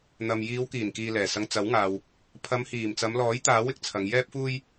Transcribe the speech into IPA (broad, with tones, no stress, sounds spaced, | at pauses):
n̪ ɐ˨ m j iː˨˧ w k iː˨˩ n k iː˨ l ɛː˨˩ s ɐ˧ ŋ t͡s ɐ˨˥ w ŋ aː˨ w | pʰ ɐ˨˧ m h iː˨˩ m t͡s ɐ˨˧ m l ɔː˨˥ j t̪ aː˨˥ w ɪ˧ k̚ t͡sʰ ɐ˨˧ ŋ j ɛː˥ p̚ f uː˥ j